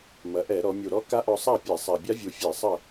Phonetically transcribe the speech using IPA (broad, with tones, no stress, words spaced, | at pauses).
mɐ˩˧ʔɛ˧˩˧ ɾɔ˩˧ mʲu˨˩ɾɔ˦˥ ka˦˥ʔɔ˧sˤa˥˨pʲɛ˧˩˧ sˤa˨˩bʲa˦˥vʲu˨˩fʲɛ˧˩˧ sˤɐ˥˨